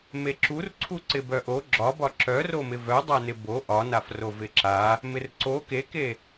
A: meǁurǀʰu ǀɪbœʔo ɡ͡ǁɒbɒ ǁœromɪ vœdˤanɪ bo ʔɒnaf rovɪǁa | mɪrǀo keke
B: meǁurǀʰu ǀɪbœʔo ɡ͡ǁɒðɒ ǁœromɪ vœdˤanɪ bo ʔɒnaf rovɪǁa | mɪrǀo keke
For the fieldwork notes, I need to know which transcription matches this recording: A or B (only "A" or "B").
A